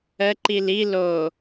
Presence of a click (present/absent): present